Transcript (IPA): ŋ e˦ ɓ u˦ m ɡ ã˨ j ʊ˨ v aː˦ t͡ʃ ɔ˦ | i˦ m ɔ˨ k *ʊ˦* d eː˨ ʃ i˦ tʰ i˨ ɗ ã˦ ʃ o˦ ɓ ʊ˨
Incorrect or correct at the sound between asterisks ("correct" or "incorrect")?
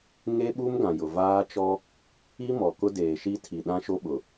correct